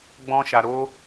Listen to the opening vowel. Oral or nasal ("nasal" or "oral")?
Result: nasal